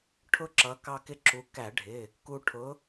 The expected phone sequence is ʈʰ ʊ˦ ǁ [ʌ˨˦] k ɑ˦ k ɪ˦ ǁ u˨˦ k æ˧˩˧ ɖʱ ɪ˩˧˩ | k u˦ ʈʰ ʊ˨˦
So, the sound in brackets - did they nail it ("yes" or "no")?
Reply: yes